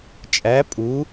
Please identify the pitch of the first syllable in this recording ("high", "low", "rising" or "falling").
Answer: rising